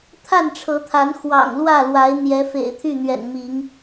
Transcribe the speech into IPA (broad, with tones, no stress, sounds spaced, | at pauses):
t̪ʰ a˥˨ n ʈ͡ʂʰ ɤ˨˦ t̪ʰ a˨˦ n x w ɑ̰˨˩ ŋ l w ä˥˨ l w a˨˦ ɪ̯ n̪ j ɛ˨˦ f ḛ˨˩ ɪ̯ t̪ʰ y˥˨ n̪ ɥ ɛ̰˨˩ n m i˨˦ ŋ